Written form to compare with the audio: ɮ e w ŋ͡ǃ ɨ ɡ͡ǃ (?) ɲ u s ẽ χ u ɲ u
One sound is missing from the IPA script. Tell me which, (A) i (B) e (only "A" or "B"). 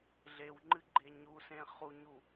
B